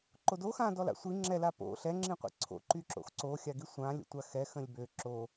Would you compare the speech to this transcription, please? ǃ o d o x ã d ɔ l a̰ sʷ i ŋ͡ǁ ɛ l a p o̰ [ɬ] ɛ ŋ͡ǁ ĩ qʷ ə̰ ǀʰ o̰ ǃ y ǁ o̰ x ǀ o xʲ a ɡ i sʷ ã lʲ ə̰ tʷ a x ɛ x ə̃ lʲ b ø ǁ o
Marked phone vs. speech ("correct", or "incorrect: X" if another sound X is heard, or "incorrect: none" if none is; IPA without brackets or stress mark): correct